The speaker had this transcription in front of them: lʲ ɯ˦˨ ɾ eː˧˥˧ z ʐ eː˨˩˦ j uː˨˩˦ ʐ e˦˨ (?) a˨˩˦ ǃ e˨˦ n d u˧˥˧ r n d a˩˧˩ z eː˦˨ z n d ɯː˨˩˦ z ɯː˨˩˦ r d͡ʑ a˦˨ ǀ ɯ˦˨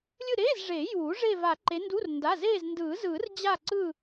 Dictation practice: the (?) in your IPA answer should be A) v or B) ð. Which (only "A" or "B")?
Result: A